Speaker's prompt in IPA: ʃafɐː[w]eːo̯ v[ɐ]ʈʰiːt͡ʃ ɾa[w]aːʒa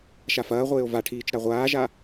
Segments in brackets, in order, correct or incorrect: incorrect, incorrect, incorrect

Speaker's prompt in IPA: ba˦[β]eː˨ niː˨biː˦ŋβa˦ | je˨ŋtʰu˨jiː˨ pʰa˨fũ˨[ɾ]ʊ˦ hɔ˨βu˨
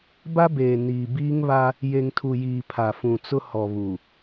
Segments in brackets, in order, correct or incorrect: incorrect, incorrect

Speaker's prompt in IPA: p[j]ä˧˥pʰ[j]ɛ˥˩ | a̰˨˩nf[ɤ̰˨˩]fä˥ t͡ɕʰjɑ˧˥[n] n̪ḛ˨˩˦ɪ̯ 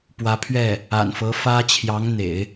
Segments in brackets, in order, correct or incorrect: incorrect, incorrect, incorrect, incorrect

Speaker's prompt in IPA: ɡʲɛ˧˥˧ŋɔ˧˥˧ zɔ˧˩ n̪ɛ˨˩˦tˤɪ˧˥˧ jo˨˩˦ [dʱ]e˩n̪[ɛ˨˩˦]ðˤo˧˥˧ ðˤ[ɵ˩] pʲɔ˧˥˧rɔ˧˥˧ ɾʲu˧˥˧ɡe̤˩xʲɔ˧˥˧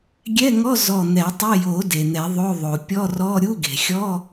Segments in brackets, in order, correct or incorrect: incorrect, correct, incorrect

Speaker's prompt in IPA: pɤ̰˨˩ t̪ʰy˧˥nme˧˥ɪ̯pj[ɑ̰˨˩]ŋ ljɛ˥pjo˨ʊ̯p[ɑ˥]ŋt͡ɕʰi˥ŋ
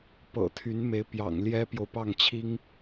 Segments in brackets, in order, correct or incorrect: correct, incorrect

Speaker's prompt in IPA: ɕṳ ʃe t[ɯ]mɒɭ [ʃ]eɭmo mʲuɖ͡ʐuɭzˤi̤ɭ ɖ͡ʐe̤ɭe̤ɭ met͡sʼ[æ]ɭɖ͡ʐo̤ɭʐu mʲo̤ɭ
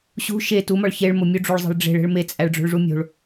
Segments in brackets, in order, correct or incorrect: incorrect, incorrect, correct

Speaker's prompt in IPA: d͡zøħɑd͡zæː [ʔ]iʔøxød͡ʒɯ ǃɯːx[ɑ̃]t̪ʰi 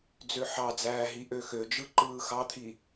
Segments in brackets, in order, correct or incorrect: incorrect, incorrect

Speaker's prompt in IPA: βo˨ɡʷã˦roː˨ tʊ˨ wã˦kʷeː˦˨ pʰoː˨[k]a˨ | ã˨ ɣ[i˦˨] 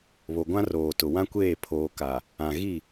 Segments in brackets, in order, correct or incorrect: correct, correct

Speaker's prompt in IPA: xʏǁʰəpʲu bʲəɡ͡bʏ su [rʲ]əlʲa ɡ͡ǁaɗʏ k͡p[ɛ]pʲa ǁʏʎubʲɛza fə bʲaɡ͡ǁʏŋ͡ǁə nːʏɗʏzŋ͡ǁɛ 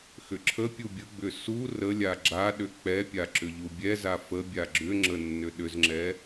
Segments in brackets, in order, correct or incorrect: incorrect, correct

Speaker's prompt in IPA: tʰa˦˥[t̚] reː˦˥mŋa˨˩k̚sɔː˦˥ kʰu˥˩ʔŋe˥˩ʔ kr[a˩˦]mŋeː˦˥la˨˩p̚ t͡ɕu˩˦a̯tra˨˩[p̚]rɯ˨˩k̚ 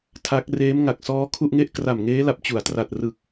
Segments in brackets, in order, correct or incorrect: incorrect, incorrect, incorrect

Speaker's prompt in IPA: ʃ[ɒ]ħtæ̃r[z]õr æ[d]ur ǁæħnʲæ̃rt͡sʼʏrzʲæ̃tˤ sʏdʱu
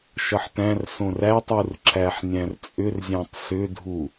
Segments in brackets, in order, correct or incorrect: incorrect, incorrect, incorrect

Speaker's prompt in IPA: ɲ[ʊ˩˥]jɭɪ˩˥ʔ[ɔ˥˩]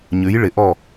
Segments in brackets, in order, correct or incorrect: incorrect, correct

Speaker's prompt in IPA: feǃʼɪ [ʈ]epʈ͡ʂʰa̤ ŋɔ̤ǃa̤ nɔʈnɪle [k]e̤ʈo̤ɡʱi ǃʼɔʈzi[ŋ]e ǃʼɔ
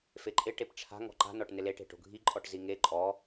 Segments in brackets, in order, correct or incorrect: correct, incorrect, correct

